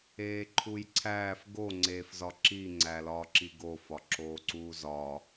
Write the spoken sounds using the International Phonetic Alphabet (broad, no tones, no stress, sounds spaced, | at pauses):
eː ǃʰ u j ǀʰ æː f ɡ o ŋ͡ǀ eː f z ɒ ǁ i ŋ͡ǀ æ l ɒː ǁ i ɡ o f ɒ ǁ oː ǀ uː z ɒː